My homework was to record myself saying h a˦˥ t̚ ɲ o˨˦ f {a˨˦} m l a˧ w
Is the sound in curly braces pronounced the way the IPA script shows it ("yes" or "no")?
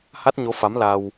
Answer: yes